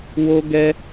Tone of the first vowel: high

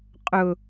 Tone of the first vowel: high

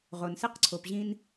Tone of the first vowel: low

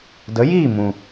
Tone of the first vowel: rising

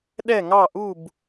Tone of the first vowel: falling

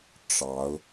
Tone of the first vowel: rising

